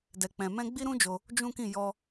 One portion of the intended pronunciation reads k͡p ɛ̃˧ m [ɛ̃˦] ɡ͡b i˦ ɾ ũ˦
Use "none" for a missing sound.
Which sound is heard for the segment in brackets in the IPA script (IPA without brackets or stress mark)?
ɛ̃˦